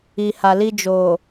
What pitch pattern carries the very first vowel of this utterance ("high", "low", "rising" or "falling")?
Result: low